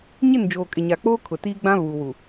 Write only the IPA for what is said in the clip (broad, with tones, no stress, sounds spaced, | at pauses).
ɲ ɪ˦˨ n d͡ʒ oː˨ kʼ ɪ˨ ɲ a˨ k͡p oː˦ kʰ ʊ˨ t iː˦ ɡ͡b ã˦ β uː˨ w u˨